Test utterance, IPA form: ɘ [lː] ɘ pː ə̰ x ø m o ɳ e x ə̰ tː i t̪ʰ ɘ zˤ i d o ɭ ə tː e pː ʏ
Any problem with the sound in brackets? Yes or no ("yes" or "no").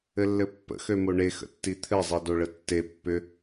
no